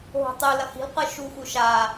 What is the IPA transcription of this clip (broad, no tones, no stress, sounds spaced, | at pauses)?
ɦ o̤ tˤ ɛ l ɐ h i̤ l q ɯ ʃ u x u ʃ a